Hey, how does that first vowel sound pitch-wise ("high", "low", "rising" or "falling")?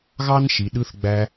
high